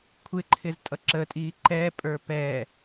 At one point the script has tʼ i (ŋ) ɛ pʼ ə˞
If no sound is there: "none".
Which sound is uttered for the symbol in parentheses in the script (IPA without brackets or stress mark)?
ǃ